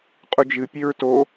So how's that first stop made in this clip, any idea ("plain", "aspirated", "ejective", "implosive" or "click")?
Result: ejective